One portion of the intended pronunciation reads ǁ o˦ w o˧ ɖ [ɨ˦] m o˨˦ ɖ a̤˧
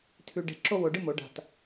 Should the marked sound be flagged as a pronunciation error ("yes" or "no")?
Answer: no